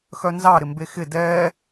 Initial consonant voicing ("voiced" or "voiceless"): voiceless